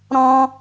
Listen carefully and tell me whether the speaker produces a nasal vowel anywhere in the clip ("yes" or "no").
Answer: yes